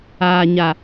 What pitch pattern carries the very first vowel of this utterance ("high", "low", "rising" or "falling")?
low